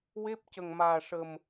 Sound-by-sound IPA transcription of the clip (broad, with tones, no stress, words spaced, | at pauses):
we˦˥p̚ cə˨˩ŋmaː˨˩ʂə˨˩m